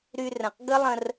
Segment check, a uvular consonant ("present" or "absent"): present